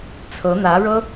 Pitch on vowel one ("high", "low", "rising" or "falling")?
rising